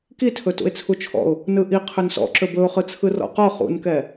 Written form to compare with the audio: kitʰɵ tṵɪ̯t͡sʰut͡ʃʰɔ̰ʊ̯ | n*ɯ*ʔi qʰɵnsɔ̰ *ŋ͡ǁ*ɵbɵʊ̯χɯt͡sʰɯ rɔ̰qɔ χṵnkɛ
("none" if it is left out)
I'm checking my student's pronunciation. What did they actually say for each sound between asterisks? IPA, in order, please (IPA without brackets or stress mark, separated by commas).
ɯ, ǁ